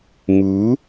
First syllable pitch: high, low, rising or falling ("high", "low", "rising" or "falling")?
rising